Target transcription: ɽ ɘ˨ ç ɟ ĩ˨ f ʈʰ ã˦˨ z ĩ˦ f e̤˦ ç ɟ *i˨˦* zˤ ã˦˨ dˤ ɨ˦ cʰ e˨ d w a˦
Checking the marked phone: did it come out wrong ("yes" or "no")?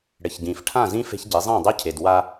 no